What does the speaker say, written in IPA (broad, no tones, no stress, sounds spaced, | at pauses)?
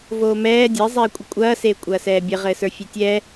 v oː m ɛː dʲ e zˤ eː kʷʼ ə kʷʼ ɐː s eː kʷʼ ɐː s ɛː bʲ ɘ ʁ ɘː s ə˞ fʲ e tʲ ɛ